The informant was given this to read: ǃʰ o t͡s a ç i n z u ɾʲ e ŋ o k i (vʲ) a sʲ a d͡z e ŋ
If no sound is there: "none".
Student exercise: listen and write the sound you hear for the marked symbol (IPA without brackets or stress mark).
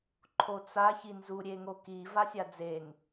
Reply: v